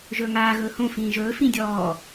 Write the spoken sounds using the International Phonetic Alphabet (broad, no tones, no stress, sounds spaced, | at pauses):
ʒ ɵ ŋ aː ɣ ɵː h õ f ĩː ʒ ɵː f ĩ dʲ ɔː